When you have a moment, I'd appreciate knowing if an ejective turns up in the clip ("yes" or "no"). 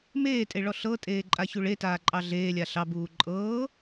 yes